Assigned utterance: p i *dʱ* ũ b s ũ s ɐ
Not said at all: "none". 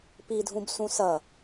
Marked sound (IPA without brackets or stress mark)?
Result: dʱ